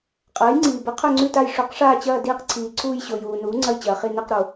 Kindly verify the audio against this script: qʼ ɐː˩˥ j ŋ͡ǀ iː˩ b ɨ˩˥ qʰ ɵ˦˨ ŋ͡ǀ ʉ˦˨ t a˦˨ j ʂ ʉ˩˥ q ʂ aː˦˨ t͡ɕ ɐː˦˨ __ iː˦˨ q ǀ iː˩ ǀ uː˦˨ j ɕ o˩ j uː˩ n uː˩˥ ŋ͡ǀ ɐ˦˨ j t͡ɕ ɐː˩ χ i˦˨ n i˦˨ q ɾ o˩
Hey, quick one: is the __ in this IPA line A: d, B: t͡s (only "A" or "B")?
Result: A